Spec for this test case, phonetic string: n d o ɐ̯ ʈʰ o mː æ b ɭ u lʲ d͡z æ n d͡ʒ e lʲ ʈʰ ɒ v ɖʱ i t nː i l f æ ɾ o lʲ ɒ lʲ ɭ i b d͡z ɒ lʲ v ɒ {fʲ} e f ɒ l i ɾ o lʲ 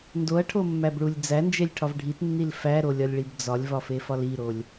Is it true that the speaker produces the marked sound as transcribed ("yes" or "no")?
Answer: no